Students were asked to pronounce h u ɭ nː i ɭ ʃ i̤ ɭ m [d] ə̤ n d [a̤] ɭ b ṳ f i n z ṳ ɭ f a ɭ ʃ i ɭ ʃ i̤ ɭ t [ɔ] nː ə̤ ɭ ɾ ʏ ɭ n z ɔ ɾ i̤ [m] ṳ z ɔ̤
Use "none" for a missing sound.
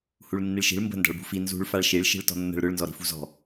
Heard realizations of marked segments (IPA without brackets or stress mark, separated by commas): b, a̤, ɔ̤, f